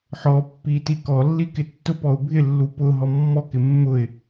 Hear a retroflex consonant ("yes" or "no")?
no